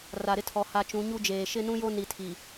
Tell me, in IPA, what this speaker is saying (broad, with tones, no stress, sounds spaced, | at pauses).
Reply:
r a˨ ɾ ɪ˦ tʰ ɔ˨ h a˨ t͡ʃ ũ˨˦ ɲ u˦ d͡ʒ eː˨ ʃ ɪ˦ n ũ˦ j o˦ n i˨ tʰ i˨